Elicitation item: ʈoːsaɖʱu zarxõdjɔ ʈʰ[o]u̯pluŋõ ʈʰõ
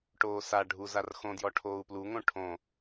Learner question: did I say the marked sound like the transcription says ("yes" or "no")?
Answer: no